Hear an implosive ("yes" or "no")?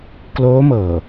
no